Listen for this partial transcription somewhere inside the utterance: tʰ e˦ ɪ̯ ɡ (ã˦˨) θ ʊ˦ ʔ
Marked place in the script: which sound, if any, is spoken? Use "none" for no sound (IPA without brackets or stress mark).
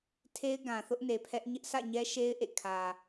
ã˨